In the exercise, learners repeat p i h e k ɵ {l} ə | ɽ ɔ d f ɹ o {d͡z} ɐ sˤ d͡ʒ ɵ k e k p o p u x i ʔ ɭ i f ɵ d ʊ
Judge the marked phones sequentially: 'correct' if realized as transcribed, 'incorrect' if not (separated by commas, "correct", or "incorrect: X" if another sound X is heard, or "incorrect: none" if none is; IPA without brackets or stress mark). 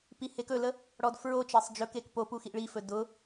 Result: correct, incorrect: t͡ʃ